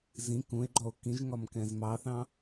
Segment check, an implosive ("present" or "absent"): absent